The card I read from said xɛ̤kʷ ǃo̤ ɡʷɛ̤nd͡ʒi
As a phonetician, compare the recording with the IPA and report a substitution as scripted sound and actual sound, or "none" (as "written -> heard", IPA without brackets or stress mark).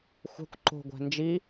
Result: x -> xʷ